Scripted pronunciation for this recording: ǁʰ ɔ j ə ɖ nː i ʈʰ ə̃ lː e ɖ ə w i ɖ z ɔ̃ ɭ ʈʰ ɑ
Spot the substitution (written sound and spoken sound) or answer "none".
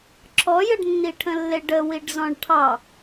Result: none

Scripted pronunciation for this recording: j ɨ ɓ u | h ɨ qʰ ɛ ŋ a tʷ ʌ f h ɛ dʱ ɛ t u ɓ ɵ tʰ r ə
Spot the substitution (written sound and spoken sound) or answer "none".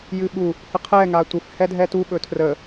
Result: ʌ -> ə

